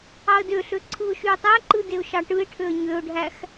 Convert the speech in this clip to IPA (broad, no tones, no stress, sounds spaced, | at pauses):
ɑ ə̯ d ø ɬ ø ǀʰ ɯ ʊ̯ ʃ y ə̯ tˤ æ ǃ ɯ d e ʊ̯ ʃ ɑ ʈ ɯ ɪ̯ ʈʰ ø ə̯ ɲ ø ʊ̯ ɖʱ æ x